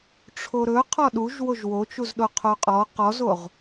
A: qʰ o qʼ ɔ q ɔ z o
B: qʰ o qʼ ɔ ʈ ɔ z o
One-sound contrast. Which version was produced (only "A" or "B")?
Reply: A